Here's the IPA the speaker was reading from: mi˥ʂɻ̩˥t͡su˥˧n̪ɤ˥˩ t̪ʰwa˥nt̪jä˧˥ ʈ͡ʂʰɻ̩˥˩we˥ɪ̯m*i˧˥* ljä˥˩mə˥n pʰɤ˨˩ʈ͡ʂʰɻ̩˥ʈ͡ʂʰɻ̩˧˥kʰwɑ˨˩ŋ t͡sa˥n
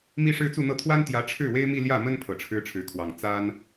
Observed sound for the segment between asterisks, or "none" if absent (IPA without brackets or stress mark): i˥˧